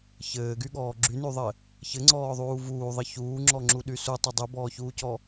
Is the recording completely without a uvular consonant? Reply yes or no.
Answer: yes